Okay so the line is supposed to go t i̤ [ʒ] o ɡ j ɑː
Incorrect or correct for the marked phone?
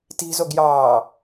incorrect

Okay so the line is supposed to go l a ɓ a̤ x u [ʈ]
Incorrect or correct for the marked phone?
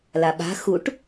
correct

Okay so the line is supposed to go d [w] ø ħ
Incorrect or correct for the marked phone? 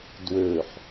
correct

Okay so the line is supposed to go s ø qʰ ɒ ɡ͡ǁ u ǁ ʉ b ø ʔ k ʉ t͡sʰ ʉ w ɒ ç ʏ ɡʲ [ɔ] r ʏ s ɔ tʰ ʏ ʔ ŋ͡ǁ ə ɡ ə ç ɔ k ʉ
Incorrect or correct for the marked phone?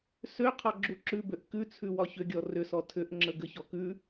correct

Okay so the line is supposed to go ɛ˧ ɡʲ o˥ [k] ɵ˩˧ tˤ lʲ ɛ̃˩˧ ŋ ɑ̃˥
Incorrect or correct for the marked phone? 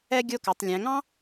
correct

